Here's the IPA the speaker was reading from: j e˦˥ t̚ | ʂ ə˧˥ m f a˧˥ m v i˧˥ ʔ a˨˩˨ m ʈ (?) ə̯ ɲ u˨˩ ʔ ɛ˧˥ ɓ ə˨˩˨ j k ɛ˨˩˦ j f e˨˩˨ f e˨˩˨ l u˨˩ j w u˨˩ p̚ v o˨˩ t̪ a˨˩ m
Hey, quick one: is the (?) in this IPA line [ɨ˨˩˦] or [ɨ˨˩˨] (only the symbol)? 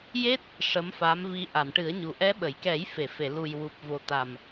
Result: ɨ˨˩˦